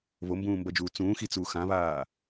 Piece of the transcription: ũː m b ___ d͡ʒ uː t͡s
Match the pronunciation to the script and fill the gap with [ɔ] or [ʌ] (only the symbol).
ʌ